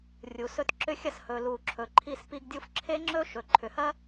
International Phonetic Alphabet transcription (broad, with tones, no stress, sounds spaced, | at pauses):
rʲ u˩ s ɵ˧ t ǁ ʏ˧ xʲ ɐ˧ s h ɵ˩ l u˩ ǁʰ ɵ˩ ǃʰ i˧ s p i˧ ɡ dʲ u˧ f ǁʰ e˥ ŋ͡ǁ ɵ˥ ʃ ɵ˩ ǃʰ ʏ˩ h ɐ˥